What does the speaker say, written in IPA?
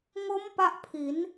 ŋ o˦˥ m p a˦˥ ʔ pʰ i˩˦ n

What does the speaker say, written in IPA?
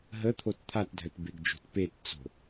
ɦ ə t̪ʰ o t t̪ʰ a t dʱ œ t b e ɡ d͡ʒ o̤ t p e t t͡s o̤

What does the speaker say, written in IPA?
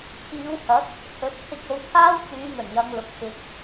t̪ʰ iː˨˧ w h ɐ˨˥ t̚ | h ɵ˨˥ t̚ t̪ʰ ɪ˧ k̚ o˨˧ w t̪ʰ aː˥ w t͡s yː˨˧ ŋ ɵ˨˩ n j ɐ˧ ŋ l ʊ˨˥ k̚ f ɪ˨ k̚

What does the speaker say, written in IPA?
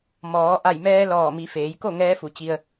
m ɔː˩˧ ʔ a˧˩ j m ɛː˧ l ɔː˧˩ m i˩˧ f eː˩˧ j k o˥˨ ŋ ɛː˧˥ f u˩˧ t͡ɕ i˧ ə̯

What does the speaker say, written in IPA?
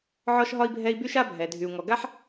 ʕ ɔ˦ ʃ ɦ ɒ˦ i̯ bʱ ɛ˦ i̯ b y˦ ʃ a˦ bʱ ɛ˨ dʱ y˨ u̯ ŋ ɔ˨ ɡ a˦ ħ

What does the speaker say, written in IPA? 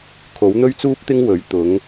kʰ o˨˥ w n̪ ɵ˥ ɥ t͡s uː˥ p̚ t̪ ɪ˥ ŋ w ɵ˨˥ ɥ t̪ ʊ˨˥ ŋ

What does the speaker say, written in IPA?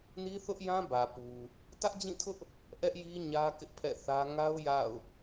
n i˦ θ ʊ˦ ʔ j ã˦ b ä˨ p u˨ | t ä˦ ʔ d͡ʑ ĩ˦˨ tʰ ʊ˦ ʔ | ʔ ɛ˦ ʔ j i˦ ɲ ä˦ k ɪ˦ ʔ pʰ ɛ̰˦˨ θ ä˦ ŋ a˦ ʊ̯ j a̰˦˨ ʊ̯

